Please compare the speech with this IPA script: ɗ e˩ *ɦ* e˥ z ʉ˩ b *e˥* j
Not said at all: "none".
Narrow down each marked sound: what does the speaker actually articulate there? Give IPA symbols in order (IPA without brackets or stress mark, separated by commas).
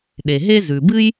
ɦ, ɨ˥